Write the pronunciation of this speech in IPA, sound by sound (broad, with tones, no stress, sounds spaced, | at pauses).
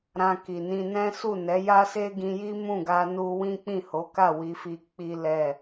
ɾ ã˧ k i˨ n ĩ˧ n ɛ̃˦ s u˦˨ n ɛ˨˦ j a˦ s e˦ ɡ ĩ˧ j i˦ m ũ˦˨ ɡ a˧ n u˦ w ĩ˦ k͡p ĩ˦˨ h o˨˦ k a˦˨ w i˧ f i˧ k͡p i˦ l ɛ˦˨